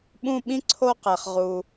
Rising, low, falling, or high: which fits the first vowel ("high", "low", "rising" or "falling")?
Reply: falling